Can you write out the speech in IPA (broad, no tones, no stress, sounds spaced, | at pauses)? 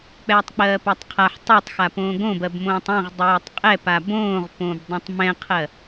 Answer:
k͡p ɛː tˤ k͡p ɜː p ɜ tˤ qʰ a ħ tˤ o tˤ x a p õː ɡ õ b ɜ b m õː tˤ ɛ̃ ʁ dˤ ɛː tˤ qʼ ɛ p a b õː ʁ p õː b dˤ ɛ̃ tˤ m ɛ̃ qʰ ɜ